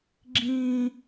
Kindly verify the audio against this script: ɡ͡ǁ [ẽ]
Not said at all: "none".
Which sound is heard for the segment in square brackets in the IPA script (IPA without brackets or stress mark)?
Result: ĩ